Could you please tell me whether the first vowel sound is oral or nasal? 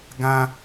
nasal